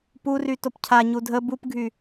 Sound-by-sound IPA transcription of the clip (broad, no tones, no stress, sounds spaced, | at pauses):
p u r y t o p cʰ a ɲ u dʱ ə b u p ɡʱ y